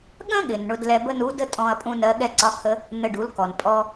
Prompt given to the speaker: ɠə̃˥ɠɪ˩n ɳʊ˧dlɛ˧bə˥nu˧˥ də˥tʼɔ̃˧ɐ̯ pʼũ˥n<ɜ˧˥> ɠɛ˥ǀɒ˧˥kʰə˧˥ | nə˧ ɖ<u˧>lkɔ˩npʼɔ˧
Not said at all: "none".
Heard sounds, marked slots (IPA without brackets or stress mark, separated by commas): ɜ˧˥, u˩˧